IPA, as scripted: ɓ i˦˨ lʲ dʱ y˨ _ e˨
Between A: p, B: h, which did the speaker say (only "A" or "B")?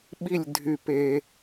A